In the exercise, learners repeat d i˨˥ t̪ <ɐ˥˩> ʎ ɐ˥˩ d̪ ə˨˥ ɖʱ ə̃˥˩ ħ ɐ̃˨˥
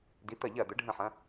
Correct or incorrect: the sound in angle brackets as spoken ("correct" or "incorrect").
correct